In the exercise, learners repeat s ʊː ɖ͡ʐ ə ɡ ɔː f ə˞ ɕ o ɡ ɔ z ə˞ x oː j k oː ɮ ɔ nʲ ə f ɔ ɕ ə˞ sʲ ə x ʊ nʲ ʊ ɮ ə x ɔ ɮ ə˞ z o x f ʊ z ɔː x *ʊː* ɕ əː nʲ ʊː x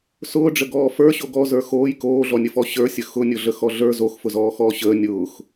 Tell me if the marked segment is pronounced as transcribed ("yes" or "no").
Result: no